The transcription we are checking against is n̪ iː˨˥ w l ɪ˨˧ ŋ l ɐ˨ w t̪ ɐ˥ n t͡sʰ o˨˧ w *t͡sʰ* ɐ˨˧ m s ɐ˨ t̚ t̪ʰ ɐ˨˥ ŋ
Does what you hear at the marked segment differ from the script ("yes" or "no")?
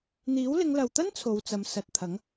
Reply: yes